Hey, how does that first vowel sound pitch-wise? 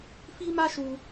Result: high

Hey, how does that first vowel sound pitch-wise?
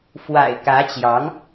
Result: low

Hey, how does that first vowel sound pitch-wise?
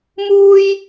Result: high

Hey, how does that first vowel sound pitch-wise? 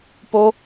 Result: high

